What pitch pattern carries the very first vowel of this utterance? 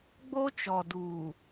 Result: high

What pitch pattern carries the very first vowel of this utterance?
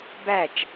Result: falling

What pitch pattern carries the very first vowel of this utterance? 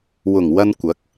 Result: low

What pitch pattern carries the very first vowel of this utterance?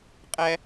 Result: high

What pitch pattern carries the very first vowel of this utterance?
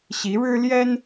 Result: rising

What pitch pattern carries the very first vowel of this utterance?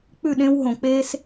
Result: falling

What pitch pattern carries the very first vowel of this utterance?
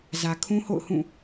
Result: low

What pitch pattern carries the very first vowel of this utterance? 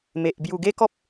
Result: low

